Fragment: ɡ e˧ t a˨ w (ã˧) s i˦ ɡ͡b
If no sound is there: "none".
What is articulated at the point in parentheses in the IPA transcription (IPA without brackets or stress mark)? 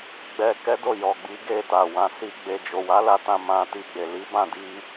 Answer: ã˧